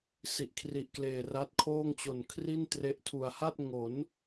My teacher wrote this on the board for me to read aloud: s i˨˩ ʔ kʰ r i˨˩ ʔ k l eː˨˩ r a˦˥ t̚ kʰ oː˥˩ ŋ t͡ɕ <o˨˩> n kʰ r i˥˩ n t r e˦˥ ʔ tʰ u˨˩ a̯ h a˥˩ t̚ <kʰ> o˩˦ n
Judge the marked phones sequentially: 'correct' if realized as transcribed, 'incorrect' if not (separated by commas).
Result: correct, incorrect